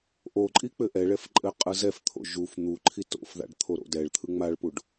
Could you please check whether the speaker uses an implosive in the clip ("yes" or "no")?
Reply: no